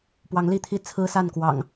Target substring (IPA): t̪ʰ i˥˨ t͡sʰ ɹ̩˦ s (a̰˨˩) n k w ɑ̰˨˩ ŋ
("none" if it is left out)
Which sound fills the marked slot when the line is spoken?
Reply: a˥˨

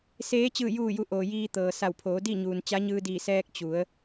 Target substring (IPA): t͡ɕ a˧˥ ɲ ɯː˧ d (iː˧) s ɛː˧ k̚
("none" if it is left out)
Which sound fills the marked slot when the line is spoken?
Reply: iː˧˩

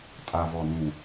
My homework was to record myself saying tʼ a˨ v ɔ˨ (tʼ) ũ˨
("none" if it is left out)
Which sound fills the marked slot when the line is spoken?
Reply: n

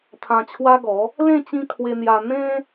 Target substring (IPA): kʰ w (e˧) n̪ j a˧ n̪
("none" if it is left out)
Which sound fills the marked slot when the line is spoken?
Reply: e˧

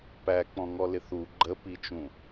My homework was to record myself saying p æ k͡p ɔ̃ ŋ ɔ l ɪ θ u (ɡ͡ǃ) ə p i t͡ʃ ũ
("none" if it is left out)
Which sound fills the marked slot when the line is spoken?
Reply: ɡ͡ǃ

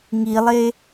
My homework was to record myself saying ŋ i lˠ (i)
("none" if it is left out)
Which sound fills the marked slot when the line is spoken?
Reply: e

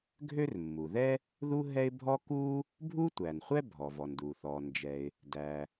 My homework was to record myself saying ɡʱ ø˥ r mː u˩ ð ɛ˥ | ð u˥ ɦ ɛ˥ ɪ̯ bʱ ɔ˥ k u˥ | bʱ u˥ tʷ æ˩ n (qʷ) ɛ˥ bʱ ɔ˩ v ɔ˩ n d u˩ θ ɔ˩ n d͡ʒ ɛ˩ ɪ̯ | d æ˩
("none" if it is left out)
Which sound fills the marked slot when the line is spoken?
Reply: χʷ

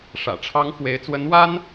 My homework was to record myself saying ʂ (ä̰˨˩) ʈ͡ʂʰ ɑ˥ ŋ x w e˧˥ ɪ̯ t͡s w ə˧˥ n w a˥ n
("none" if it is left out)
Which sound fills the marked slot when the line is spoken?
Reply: ä̰˨˩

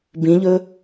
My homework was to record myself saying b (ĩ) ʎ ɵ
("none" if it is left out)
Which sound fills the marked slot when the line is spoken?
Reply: ĩ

